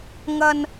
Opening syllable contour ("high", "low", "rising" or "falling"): low